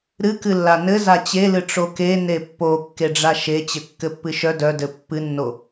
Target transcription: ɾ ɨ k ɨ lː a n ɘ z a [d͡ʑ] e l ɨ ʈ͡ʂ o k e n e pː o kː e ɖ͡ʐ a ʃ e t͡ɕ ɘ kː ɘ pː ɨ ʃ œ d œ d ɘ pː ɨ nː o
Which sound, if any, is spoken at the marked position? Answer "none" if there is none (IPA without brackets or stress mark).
t͡ɕ